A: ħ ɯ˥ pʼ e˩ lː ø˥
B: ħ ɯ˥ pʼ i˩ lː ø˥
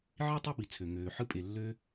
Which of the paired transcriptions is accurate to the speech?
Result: A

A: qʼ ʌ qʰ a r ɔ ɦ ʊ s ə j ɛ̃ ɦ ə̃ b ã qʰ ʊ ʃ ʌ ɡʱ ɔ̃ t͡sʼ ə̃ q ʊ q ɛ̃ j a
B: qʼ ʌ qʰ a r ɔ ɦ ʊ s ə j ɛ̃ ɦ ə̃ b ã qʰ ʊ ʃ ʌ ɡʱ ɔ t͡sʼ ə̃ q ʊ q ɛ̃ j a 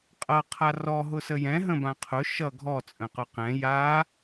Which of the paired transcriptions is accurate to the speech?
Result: B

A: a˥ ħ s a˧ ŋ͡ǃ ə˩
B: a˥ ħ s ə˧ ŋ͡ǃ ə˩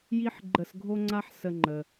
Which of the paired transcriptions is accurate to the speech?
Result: B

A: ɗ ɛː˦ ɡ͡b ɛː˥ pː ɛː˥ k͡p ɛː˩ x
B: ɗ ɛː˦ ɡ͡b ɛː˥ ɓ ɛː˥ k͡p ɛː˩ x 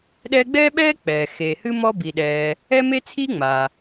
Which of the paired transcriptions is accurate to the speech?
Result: B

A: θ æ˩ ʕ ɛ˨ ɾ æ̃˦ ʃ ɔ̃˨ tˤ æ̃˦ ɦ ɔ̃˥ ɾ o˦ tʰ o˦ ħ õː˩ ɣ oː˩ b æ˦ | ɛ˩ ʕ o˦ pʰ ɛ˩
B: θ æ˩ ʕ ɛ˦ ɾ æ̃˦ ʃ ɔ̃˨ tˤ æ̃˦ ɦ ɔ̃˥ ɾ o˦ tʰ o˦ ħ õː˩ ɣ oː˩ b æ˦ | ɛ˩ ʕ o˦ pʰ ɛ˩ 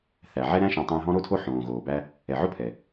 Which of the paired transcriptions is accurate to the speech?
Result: B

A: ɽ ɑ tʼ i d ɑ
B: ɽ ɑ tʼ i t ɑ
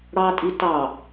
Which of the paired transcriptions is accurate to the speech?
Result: B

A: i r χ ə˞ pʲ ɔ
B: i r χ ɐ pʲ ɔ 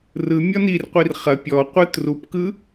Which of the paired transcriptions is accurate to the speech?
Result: B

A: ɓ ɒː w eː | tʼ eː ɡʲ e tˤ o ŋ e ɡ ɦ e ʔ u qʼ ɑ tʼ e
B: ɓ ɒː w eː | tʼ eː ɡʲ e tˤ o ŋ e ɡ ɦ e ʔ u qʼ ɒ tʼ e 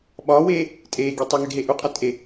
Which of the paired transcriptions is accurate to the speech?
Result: B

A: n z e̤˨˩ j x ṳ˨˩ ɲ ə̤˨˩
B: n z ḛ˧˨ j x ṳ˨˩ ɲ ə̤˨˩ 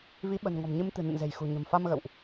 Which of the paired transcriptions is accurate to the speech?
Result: A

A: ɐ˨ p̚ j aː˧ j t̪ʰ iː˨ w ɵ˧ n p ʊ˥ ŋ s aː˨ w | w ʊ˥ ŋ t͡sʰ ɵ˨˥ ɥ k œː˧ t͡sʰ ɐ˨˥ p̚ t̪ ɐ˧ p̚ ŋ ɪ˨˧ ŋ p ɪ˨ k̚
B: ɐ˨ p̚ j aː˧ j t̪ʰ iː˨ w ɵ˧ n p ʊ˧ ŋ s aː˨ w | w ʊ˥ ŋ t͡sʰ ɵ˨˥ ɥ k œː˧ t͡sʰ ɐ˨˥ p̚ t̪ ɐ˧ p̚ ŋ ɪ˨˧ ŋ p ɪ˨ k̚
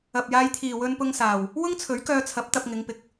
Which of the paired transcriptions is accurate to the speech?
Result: B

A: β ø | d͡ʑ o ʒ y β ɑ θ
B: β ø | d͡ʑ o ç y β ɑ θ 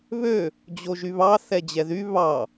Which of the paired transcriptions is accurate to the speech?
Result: A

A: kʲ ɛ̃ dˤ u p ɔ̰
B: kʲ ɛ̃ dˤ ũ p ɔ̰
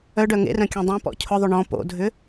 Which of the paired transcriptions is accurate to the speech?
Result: B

